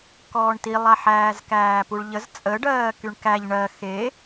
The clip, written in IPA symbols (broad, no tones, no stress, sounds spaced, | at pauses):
k ɔː ɳ t i lˠ a ħ æː z k æː p u ɭ ʎ ə z t͡sʼ ə ɖ ɜː k y ɳ k æ ʎ ɳ ɜ x e